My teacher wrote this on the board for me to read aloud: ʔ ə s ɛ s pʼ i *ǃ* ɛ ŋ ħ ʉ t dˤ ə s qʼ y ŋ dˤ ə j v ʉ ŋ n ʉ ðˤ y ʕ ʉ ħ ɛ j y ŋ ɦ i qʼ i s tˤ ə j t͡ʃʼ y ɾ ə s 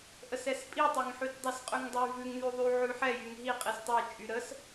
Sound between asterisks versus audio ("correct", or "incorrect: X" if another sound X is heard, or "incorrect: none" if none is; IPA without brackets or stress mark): incorrect: tˤ